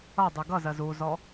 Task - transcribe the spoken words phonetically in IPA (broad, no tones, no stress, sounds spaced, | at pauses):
ʌ dˤ ʉ ɡ ʌ z ɜ z u z ɔ